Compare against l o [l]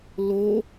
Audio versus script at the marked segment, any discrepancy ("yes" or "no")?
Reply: yes